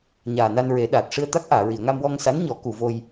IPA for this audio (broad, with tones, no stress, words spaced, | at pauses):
ɲaː˨˩na˧nɹe˨˩˦ ɗaː˨˩t̚ ʂɨ˧ə̯t̪a˦˥k̚ʔaː˨˩˨ ɹi˨˩˨ə̯ŋa˧mwɔ˧ŋsa˧˥n ɲɔ˨˩˦ku˨˩˨ vo˧j